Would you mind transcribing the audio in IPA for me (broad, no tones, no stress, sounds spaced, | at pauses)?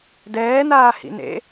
d ɛː n aː h ḭ n ḛ